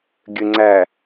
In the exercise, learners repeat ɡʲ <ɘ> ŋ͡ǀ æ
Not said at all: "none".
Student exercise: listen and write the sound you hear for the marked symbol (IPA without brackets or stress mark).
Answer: ɘ